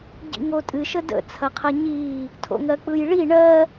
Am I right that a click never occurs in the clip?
yes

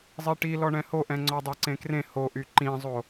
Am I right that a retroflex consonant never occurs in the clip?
no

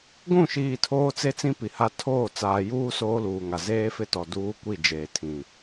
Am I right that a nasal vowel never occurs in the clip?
no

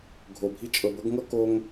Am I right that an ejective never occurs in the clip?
no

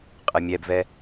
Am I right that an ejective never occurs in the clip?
no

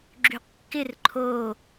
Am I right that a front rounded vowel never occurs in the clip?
no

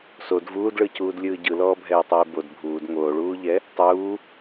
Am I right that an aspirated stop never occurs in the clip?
yes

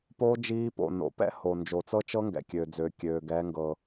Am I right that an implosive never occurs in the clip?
yes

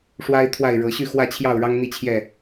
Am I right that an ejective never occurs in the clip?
yes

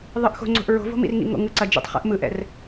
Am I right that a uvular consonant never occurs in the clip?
no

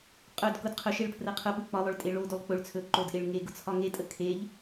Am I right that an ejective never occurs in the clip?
no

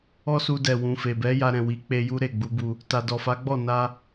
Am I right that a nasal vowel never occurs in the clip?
no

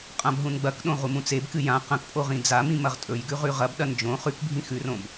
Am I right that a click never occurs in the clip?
yes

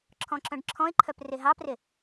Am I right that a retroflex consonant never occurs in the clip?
no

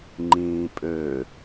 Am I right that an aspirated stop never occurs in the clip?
yes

